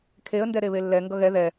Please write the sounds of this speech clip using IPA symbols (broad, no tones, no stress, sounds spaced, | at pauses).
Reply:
kʰ e ə̯ n d ɛ ɾ e β e lː ɛ ŋ ɡ ʌ ɣ ɛ ð ɛ